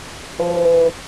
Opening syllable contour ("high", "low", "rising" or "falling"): low